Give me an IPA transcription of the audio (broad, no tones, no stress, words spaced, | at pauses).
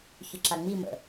çʏǁaŋ͡mimə̰